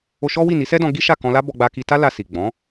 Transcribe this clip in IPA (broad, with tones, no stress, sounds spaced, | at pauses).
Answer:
o˧ ʃ ɔ˦ w i˦˨ n i˨˦ s ɛ˦ d ɔ̃˧ ɡ i˦ ʃ a˦˨ k ɔ̃˧ l a˦ b ɔ˧ ɡ͡b a˧ k i˧ t a˦ l a˧ s i˨ ɡ͡b ɔ̃˨˦